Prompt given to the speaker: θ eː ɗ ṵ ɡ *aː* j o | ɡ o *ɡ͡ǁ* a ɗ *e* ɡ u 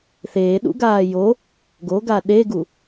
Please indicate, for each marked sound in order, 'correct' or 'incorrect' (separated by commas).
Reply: correct, incorrect, correct